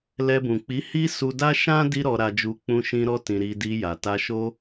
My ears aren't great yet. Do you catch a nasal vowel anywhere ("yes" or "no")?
yes